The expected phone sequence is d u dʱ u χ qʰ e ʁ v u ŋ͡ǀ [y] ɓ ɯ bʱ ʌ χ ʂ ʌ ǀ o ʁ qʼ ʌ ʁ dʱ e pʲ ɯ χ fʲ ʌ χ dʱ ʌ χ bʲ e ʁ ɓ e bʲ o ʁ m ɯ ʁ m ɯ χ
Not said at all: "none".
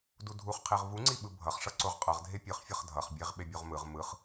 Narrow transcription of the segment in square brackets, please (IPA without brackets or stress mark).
i